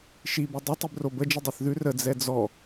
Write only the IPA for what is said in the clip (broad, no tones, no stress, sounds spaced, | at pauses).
ʃ i b ʉ dˤ ə tˤ i b r o b ə d͡ʒ i dˤ i θ ð ʉ r ə d͡z ɛ d͡z ɔ